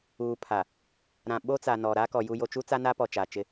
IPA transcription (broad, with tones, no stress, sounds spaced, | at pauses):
uː˨ pʰ a˨ | ɾ ã˨ ɓ o˦ t͡s a˨ n ɔ˨ ɾ a˦ k ɔ˨ j u˨ j o˨ t͡ʃ u˦ t͡s a˦ n a˦ p ɔ˨ t͡ʃ aː˨ t͡ʃ ɪ˦